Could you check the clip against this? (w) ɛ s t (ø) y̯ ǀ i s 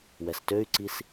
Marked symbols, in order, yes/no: yes, yes

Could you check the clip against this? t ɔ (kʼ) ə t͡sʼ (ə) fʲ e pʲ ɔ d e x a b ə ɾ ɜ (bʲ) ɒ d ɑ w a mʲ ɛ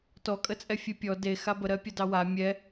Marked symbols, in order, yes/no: yes, no, no

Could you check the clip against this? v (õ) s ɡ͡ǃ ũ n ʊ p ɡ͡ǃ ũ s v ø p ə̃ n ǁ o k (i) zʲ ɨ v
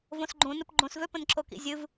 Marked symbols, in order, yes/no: yes, no

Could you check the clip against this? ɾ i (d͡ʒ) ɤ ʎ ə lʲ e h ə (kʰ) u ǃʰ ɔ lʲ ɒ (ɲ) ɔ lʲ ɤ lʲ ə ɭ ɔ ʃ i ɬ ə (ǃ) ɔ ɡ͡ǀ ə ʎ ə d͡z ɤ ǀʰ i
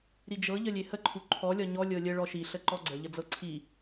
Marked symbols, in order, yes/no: yes, no, yes, yes

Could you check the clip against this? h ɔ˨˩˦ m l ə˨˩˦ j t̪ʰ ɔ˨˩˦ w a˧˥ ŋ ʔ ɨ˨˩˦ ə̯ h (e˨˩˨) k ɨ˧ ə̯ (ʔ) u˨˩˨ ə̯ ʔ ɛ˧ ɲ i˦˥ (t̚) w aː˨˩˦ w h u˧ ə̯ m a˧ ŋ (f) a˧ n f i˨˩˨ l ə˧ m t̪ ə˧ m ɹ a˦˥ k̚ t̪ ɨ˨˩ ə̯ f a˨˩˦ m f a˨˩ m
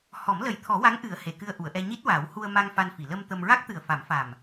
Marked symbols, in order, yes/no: yes, yes, yes, yes

